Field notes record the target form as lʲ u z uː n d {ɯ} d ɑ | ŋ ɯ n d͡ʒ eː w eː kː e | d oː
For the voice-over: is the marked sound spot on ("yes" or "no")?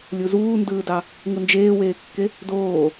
no